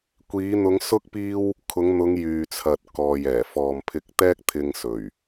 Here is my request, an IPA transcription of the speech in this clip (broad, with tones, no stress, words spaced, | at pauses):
kʷiː˨˧n̪ʊ˨˧ŋ sʊ˥k̚ piː˥w | kʰʊ˨˧ŋ n̪ʊ˨˧ŋ jyː˨t͡sʰɐ˨t̚ kɔː˨jɛː˨˩ fɔː˨mpʰɪ˧k̚ t̪ɛː˥k̚t̪ʰɪ˧ŋ sɵ˨˩ɥ